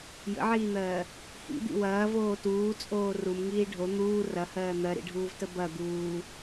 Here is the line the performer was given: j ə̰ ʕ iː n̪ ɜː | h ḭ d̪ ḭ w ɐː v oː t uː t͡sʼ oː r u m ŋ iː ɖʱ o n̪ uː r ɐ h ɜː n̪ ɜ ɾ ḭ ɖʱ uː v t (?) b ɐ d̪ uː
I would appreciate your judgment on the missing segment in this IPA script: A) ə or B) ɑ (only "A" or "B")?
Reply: A